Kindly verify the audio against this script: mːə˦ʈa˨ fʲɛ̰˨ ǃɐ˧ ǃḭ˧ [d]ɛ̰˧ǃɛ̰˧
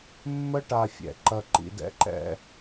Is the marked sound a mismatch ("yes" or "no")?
no